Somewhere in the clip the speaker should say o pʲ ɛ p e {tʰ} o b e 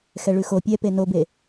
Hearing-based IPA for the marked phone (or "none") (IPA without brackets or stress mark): n